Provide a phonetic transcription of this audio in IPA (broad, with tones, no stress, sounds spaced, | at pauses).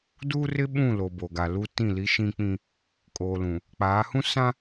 d uː˦ r ɪ˦ ɓ ũ˦˨ l o˨ b o˨ ɡ a˨ l u˦ t ĩ˦˨ l i˦ ʃ ĩ˦ k͡p ĩ˦ | kʼ oː˨ l ũ˨ | k͡p aː˨˦ h ũ˦ s ã˦